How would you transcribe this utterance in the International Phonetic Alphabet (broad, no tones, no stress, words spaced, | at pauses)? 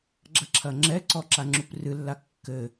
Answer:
ɡ͡ǁɐǁʰɐŋ͡ǁɛǀɔ ǁaŋ͡ǁuprɨlːa kːɘ